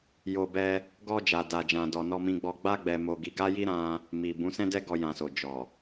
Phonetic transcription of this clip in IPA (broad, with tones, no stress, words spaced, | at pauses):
jo˨bɛ˧ | ɡɔ˧ d͡ʒa˨da˨d͡ʒã˨ dɔ˨nɔ˧mĩ˧ɡ͡bɔ˧ ɡ͡ba˦ɡ͡bɛ˧ mo˧ɡi˧ɡa˦ji˦ ɾã˦ | mi˨ bũ˨˦sɛ̃˦dɛ˦ɡɔ˧ jã˨so˨ d͡ʒɔ˨